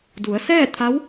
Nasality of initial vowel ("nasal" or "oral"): oral